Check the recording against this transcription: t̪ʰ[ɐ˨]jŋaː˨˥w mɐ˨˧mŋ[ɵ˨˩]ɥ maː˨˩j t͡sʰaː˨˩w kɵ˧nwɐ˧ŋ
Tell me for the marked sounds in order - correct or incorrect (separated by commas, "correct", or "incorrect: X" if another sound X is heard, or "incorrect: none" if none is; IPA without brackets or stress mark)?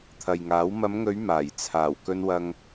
correct, incorrect: ɵ˨˧